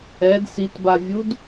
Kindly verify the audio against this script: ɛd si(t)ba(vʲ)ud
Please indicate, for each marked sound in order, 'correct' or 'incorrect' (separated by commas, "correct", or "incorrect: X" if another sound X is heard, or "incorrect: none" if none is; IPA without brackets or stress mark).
correct, correct